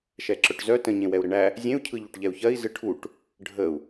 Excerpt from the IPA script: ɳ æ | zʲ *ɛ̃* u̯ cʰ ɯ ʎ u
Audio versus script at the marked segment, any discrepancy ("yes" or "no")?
yes